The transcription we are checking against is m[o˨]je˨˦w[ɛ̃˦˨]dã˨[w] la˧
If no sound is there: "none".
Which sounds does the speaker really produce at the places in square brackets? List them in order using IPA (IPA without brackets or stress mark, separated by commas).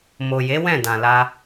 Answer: o˨, ɛ̃˦˨, none